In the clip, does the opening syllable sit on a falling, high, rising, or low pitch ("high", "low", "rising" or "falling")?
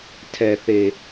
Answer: low